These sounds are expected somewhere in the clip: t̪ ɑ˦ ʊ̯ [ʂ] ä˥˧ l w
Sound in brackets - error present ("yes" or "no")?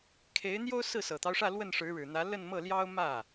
no